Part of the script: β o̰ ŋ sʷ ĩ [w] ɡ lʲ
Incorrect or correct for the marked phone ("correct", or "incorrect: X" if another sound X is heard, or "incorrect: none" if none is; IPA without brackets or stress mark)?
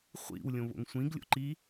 incorrect: none